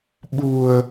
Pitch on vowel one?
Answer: low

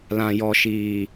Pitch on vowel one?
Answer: low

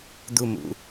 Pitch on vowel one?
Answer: falling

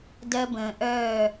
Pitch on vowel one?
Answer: high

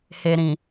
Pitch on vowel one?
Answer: low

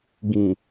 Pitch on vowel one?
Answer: low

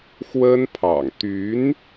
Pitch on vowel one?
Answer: high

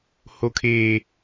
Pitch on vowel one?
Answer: high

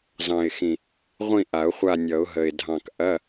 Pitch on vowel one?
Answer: low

